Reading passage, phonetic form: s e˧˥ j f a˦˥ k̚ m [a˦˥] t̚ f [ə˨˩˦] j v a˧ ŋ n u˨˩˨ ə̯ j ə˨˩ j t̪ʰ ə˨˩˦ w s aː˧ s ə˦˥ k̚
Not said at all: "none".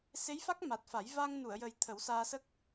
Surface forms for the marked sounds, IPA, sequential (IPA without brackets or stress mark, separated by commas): a˨˩, a˨˩˦